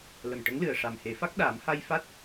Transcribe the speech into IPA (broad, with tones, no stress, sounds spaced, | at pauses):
l ə˨˩ m ʈ ə˧˥ ŋ l ɨ˨˩ ə̯ ʂ a˨˩ m h e˨˩˦ f a˦˥ k̚ ɗ aː˨˩˦ m h a˧ j f a˦˥ t̚